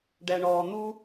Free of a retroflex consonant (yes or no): no